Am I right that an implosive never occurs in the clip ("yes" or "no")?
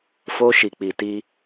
yes